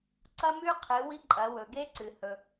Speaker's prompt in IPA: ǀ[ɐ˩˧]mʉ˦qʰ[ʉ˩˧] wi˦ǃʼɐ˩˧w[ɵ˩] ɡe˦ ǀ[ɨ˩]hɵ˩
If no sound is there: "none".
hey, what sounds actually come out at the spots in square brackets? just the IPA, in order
ɐ˦, ɨ˩˧, ɵ˩, ɨ˩

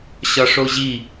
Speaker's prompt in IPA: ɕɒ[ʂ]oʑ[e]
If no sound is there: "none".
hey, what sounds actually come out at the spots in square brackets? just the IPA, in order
ʂ, i

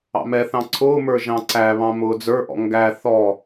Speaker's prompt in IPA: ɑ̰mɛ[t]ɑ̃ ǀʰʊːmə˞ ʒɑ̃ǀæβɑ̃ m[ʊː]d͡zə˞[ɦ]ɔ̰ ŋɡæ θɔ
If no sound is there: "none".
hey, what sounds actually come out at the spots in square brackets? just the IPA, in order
θ, ʊː, ʔ

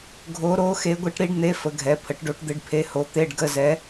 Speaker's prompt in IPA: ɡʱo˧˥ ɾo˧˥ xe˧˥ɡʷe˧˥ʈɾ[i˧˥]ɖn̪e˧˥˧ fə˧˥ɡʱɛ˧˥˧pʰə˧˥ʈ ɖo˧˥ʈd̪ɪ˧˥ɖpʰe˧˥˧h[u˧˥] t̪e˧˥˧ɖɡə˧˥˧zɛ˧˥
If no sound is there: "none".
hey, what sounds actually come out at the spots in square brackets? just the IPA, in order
i˧˥, o˧˥

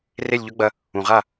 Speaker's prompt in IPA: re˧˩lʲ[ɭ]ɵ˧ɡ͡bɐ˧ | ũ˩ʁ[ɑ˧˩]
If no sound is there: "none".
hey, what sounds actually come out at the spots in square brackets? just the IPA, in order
ʎ, a˧˩

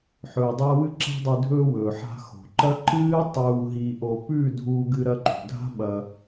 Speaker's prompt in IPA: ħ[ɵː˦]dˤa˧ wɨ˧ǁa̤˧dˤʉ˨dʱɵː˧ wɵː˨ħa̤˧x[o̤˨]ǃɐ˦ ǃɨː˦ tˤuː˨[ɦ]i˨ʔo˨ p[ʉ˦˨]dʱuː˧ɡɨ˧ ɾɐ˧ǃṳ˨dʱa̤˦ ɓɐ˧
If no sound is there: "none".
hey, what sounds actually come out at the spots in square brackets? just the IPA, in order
ɵː˨, o̤˨, ɦ, ʉ˦˨

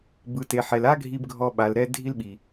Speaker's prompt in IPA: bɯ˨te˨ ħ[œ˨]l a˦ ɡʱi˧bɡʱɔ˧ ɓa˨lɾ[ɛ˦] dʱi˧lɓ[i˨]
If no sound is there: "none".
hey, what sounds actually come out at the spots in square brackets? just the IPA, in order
ɛ˨, ɛ˧, i˨

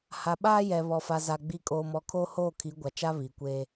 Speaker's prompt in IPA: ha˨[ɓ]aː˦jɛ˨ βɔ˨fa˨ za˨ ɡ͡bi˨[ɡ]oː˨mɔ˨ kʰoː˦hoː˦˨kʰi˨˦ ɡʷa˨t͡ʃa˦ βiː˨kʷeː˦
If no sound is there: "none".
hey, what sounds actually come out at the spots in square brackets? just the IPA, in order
ɓ, kʼ

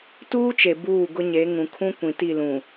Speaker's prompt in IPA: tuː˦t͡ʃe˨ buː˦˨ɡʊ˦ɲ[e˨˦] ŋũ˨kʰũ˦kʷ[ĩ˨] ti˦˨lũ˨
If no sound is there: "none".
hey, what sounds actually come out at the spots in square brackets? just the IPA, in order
e˨˦, ĩ˨

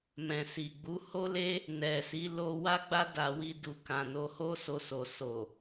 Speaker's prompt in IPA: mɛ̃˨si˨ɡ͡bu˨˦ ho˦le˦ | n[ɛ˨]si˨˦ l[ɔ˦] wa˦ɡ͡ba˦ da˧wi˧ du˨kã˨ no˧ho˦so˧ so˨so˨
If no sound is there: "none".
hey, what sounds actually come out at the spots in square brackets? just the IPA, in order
ɛ˨, o˦

